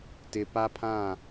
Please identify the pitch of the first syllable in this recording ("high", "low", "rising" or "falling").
low